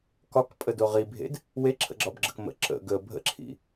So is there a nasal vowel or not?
no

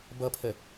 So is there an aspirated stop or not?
yes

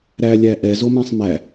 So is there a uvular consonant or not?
no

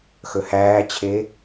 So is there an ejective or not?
no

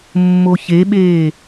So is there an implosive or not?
yes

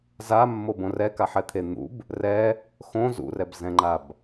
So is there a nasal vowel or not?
yes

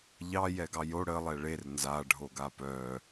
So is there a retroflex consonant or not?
yes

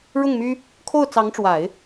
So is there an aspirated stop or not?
yes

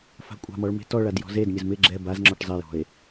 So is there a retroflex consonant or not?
yes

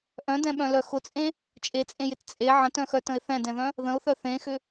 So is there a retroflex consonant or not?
no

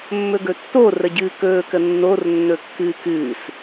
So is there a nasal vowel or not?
no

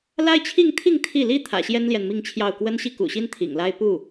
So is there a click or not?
no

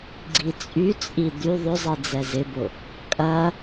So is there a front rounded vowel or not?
yes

